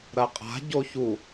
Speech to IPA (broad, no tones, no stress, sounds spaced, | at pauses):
ɾ ɐ qʼ a̤ ɟ o ç u